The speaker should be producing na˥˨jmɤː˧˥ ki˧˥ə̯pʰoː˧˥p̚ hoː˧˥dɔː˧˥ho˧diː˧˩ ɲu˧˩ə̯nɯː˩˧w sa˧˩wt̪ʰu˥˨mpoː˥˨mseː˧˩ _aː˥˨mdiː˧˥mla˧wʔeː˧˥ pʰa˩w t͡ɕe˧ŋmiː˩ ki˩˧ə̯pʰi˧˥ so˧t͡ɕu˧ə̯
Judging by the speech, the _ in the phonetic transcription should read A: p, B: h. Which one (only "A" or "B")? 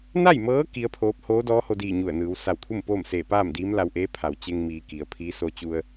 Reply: A